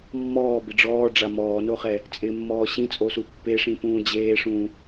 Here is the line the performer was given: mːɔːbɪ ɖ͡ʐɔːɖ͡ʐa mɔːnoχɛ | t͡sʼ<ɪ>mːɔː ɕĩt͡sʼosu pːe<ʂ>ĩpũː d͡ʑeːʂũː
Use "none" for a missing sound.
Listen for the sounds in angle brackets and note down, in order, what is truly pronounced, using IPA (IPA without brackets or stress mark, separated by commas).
ɪ, ʂ